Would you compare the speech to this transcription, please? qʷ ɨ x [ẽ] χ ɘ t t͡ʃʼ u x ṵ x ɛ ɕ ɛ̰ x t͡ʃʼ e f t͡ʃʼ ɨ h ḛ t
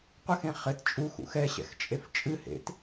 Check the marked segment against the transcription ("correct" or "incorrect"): correct